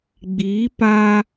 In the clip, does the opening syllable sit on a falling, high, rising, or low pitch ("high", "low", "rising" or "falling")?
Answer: rising